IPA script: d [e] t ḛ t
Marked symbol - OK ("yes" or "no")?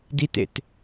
no